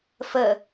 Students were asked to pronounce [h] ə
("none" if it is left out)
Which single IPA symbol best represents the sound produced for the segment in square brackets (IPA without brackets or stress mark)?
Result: f